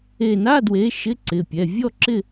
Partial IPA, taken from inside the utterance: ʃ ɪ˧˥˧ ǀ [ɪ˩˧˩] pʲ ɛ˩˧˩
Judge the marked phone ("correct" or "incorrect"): correct